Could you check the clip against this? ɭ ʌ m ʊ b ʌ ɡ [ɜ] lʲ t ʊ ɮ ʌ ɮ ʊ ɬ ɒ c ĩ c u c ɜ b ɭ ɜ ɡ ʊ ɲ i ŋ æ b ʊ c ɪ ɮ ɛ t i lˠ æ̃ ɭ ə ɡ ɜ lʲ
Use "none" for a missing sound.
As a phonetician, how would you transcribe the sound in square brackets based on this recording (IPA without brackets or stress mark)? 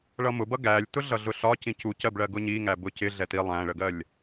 æ